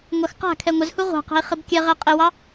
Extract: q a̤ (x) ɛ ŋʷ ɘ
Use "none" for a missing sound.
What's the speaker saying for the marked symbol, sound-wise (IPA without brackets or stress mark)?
kʰ